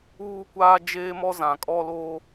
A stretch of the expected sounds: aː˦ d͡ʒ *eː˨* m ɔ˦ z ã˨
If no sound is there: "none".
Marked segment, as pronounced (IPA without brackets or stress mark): eː˦